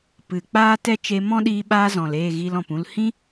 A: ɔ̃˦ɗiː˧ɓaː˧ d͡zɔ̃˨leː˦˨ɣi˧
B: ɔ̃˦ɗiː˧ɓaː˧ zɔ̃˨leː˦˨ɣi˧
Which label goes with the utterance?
B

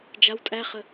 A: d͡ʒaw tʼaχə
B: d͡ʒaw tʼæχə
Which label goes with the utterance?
B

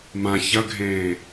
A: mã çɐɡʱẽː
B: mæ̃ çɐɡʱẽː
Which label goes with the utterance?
A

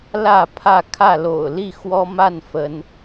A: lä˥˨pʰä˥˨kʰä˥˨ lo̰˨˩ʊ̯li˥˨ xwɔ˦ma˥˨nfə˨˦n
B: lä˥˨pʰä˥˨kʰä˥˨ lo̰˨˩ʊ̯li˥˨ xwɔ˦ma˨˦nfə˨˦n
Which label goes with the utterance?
A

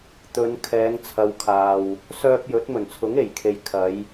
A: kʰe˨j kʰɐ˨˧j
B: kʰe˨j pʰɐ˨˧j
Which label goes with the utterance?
A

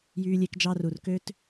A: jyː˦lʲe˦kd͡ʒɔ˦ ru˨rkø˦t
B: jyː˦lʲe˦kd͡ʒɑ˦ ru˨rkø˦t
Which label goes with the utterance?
B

